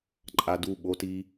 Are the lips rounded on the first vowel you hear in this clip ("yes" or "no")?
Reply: no